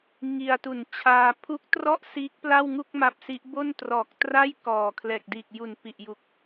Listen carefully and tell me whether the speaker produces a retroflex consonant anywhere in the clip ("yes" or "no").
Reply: no